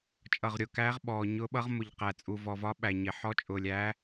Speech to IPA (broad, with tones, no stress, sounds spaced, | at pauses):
t͡ʃʼ ʌ˨ ʁ ɾʲ ʊ˨ k æː˧˥ ʁ ɓ ɔː˨ ɲ ʊː˧˥ ɓ ʌ˧˥ ʁ m ʊ˨ ʎ q æ˨ t͡sʼ u˨ v ɔ˨ v ɒ˧˥ ɓ æ˨ ɲ ɪ˨ ħ ɔ˧˥ t͡ʃʼ ʊː˨ lʲ æː˧˥